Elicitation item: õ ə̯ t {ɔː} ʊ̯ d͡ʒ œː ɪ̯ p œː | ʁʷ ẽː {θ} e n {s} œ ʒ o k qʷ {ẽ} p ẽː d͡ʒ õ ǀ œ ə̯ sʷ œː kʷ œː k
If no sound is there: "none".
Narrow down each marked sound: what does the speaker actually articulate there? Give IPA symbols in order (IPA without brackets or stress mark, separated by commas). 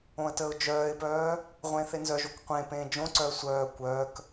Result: əː, θ, z, ẽ